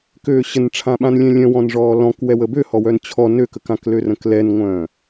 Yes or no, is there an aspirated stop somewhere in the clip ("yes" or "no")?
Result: yes